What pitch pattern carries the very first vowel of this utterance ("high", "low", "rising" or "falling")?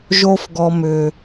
high